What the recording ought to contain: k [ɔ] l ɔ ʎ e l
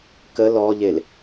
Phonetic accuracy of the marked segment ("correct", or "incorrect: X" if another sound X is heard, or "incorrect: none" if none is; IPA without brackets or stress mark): incorrect: ə